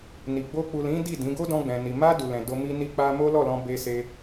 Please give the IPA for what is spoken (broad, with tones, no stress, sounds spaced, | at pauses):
n i˨ ɡ͡b o˧ k͡p u˨ l ĩ˨˦ d i˦˨ d ĩ˨˦ ɡ o˦ d ɔ̃˧ ɡ͡b ɛ̃˨ n i˨ m a˧ d u˨ l ɛ̃˨ d o˧ m i˦ n i˦ k͡p a˦ m o˦ l ɔ˦˨ l ɔ̃˧ b e˧ s e˦